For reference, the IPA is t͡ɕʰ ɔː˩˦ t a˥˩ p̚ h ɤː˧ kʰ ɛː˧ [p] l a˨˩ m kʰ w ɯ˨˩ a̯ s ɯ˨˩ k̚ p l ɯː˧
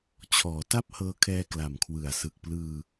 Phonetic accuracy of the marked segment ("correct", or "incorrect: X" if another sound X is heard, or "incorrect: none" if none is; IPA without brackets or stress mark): incorrect: k